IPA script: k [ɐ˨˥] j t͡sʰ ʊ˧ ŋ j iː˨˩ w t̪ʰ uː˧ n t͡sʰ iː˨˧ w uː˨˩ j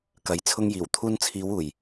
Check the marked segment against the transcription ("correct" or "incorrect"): correct